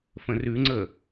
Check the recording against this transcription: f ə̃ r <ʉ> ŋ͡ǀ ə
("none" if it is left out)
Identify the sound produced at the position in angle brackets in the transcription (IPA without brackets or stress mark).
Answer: ʉ